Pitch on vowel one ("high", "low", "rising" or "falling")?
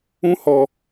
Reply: high